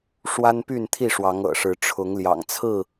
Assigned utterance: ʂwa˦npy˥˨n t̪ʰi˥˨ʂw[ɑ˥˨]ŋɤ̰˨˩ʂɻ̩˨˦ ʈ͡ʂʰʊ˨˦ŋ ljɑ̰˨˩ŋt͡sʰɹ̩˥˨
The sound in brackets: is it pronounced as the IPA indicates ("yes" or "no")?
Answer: no